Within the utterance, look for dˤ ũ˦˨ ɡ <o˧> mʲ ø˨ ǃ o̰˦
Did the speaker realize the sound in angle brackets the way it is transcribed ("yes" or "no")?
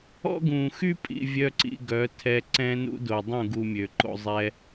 no